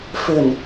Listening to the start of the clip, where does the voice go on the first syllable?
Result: low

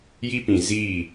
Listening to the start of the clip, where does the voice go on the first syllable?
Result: high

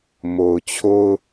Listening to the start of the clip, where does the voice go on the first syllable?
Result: low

